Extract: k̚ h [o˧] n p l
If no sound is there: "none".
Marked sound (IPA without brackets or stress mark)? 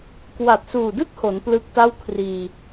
o˩˦